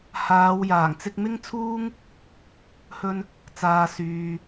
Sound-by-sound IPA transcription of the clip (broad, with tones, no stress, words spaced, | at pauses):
haː˨˧wjaː˨˩ŋ t͡sɪ˧k̚mɪ˥ŋt͡sʰuː˥ŋ | hɵ˧n | t͡saː˨syː˨